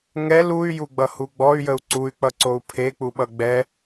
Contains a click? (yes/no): yes